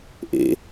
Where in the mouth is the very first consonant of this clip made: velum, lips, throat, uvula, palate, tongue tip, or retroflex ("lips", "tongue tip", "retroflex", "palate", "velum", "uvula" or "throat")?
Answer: throat